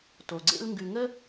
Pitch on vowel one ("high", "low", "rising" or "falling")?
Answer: low